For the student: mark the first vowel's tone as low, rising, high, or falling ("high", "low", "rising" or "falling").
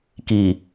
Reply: low